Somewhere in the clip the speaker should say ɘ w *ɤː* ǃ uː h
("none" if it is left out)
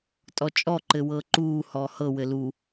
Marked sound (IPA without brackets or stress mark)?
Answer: ɤː